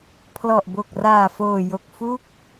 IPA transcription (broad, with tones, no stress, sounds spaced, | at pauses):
pʰ l ɔ˨˩ ʔ b o˨˩ k̚ r aː˨˩ f oː˨˩ j o˨˩ k̚ f u˦˥ k̚